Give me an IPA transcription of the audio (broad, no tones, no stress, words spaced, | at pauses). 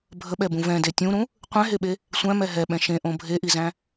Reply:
bʱəɓɛbũ vɛ̃de tʲũɾũ | qʷɛ̃ɦeɓe | sʷæ̃mɛ ɦɛɓɛ̃ ʃẽʔõ bʱeʔizæ̃